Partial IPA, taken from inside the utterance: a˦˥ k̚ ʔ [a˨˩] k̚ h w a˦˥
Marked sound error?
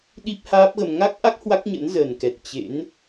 yes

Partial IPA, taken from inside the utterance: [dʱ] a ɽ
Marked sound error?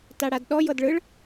yes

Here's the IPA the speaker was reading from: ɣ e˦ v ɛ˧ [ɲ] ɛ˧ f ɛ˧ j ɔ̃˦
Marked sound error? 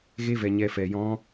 no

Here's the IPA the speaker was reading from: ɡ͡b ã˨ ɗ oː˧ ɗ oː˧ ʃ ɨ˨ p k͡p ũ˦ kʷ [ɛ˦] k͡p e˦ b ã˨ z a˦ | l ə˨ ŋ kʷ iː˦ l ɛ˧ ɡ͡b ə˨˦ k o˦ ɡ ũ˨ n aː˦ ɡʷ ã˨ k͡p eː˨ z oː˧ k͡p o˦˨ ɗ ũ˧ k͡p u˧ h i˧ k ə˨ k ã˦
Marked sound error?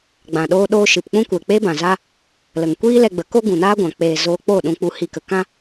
yes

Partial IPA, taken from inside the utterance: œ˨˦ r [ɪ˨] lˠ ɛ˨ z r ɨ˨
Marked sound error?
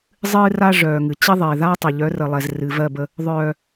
yes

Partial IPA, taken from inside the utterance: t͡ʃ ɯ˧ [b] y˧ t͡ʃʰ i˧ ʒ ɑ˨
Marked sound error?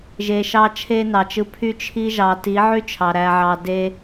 yes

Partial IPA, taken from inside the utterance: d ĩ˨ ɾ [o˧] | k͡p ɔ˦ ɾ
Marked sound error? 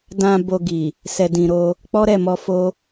no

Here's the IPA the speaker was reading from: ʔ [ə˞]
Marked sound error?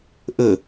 yes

